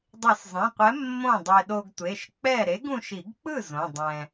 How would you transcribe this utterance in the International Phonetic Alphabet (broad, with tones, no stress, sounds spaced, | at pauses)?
dˤ i˨˩˦ s zˤ ẽ˩˧˩ qʷ ɛ˨˥ mː õ˥˩ dˤ e˧ ɗ o˧ ɡ tʷ e˩˧˩ ʃ k͡p ɛ˥˩ ɾ e˨˥ ɡ ũ˧ ʃ i˨˩˦ ɡ k͡p ɯ˥˩ z õ˩˧˩ dˤ ɛ̃˧